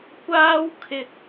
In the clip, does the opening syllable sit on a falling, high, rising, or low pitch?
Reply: high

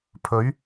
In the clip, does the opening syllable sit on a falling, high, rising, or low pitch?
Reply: rising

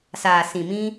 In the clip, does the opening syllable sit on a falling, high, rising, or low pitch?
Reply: low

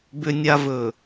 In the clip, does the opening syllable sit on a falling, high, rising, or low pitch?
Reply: low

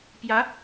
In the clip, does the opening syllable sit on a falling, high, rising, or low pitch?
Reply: rising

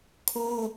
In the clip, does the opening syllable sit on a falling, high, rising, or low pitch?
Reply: high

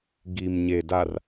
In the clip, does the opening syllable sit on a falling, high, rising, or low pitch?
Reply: low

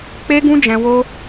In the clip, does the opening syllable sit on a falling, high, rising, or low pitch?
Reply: high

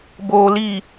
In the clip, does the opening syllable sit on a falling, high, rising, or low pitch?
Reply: low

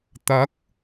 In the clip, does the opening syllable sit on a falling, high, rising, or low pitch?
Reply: rising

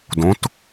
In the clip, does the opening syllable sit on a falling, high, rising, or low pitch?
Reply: rising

